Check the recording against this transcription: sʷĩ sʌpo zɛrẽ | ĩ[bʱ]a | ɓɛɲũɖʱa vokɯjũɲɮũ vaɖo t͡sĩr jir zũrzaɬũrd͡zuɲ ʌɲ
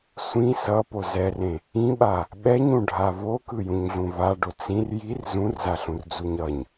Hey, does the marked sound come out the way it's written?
no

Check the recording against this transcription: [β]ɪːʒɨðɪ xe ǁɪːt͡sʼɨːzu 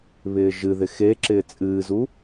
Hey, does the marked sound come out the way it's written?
yes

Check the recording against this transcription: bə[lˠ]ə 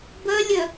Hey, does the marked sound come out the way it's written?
no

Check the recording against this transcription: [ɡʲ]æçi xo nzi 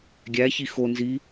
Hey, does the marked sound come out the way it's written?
yes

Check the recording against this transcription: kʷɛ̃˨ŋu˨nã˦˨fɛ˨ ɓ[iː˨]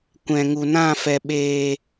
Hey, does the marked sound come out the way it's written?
no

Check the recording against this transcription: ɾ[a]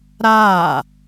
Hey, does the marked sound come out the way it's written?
no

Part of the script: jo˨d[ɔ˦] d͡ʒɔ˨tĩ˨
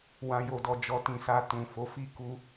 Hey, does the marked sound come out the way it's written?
no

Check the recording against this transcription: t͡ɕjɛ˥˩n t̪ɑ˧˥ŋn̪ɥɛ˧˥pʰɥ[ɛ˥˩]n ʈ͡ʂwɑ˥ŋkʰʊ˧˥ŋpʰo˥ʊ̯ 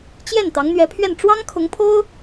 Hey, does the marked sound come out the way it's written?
yes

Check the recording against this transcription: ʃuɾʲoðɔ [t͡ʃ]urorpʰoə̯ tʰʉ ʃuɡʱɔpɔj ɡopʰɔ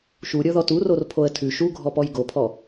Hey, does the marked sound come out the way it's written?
no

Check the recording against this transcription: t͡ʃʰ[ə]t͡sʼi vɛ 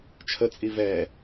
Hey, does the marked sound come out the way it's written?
yes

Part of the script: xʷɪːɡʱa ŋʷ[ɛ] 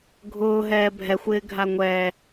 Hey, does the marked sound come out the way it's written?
no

